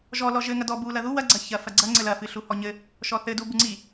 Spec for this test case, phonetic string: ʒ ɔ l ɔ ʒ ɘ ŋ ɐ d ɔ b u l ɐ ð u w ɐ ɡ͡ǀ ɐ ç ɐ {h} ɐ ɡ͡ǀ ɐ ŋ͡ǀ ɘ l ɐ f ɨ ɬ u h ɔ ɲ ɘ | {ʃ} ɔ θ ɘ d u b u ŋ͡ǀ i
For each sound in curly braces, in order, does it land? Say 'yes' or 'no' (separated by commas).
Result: no, yes